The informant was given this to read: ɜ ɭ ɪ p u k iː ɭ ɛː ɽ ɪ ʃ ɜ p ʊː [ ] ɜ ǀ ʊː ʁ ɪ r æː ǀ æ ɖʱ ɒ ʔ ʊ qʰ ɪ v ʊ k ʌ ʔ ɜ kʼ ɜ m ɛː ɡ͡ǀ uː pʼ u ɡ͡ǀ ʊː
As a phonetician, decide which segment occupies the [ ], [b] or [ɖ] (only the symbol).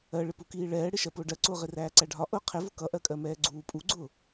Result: ɖ